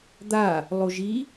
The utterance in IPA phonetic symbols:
d̪a | lˠoʒi

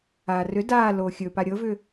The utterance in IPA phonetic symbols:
aːrʏ daː loːxʲɵpa ɾʲɤvʏ

